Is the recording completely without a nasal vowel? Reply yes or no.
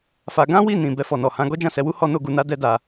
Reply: no